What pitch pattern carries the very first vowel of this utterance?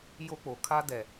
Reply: high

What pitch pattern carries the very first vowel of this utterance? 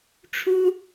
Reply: high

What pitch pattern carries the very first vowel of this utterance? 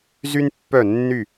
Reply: high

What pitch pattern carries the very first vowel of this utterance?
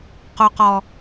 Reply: low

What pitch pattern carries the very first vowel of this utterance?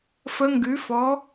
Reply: rising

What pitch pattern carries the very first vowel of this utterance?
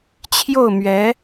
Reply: falling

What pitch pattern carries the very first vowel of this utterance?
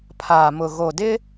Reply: low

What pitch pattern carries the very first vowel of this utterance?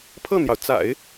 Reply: falling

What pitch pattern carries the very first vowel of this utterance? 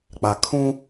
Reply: low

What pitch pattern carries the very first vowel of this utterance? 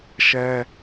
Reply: high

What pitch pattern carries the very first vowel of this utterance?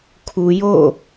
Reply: low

